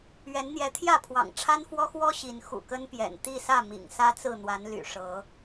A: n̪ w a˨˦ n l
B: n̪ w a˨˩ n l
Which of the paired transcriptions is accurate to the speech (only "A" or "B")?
A